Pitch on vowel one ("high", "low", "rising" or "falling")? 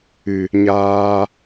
low